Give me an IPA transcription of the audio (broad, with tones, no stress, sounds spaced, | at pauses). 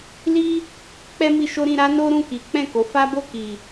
l i˦ | k͡p ɛ˦ m i˧ ʃ o˦ ɾ ĩ˧ ɾ a˦ n o˦ ɾ ũ˦˨ k i˨˦ k͡p ɛ̃˦˨ k o˨˦ f a˦ b o˦˨ k i˨